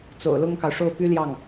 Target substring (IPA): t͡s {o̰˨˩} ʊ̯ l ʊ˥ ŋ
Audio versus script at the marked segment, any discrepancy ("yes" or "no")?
no